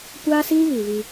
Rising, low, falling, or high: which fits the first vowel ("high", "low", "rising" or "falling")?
high